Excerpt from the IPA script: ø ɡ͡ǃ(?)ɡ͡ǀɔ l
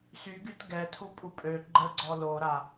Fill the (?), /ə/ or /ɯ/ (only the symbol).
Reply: ə